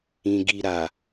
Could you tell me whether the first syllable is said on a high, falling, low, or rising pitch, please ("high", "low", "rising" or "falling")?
low